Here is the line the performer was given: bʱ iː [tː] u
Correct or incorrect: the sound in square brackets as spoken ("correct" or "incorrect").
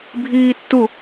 correct